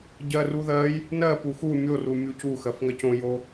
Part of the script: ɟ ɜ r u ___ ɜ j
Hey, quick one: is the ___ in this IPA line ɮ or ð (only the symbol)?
ð